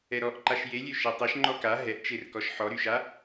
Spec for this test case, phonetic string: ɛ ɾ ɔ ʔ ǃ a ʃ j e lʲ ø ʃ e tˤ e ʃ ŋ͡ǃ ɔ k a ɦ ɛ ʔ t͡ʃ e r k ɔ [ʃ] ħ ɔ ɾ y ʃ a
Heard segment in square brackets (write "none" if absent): ʃ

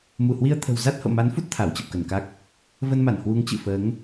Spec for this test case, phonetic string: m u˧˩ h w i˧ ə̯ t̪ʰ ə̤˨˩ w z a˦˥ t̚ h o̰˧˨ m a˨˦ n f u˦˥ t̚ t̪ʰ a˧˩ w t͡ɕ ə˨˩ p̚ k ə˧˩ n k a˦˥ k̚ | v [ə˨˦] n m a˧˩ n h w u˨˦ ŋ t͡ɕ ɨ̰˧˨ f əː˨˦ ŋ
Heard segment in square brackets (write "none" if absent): ə˧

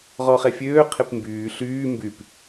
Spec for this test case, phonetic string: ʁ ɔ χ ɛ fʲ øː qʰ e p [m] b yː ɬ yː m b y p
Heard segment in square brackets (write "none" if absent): m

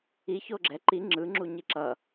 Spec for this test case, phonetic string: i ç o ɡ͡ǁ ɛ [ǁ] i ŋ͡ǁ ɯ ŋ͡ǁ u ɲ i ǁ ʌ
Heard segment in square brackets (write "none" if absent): ǃ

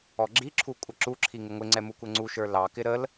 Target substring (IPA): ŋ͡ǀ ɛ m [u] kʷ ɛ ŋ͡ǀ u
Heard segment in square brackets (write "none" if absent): u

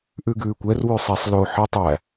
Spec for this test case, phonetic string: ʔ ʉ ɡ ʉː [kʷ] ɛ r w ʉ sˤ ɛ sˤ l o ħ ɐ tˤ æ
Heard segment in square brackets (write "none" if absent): kʷ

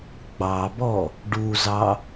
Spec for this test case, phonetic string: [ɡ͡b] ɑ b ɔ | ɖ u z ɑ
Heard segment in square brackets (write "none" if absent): ɡ͡b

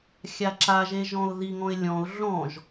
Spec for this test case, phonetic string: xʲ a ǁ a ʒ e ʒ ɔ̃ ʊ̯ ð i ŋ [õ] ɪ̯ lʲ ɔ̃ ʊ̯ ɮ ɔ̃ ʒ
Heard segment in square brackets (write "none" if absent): ɔ̃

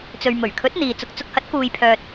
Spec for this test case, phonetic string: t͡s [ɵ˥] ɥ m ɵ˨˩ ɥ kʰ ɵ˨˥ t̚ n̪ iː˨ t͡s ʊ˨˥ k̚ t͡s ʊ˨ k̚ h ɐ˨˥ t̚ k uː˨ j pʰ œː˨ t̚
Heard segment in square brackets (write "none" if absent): ɵ˨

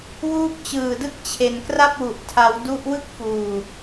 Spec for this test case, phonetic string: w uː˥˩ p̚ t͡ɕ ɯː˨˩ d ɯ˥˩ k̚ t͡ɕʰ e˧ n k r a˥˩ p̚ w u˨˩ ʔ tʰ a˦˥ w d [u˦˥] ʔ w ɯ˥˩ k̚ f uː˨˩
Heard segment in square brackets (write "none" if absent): u˦˥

